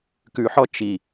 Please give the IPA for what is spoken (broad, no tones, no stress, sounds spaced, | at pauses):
k ʉ ħ ɔ t͡ʃ i